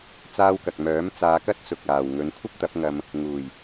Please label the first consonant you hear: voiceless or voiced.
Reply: voiceless